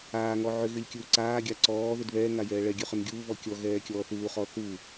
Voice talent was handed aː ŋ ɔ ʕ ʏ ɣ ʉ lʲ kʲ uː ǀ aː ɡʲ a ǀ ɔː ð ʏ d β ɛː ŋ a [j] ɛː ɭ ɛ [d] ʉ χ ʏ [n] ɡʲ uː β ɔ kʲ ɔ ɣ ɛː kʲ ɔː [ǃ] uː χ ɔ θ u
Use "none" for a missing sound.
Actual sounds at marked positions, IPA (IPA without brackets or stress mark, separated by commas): j, ɡʲ, n, θ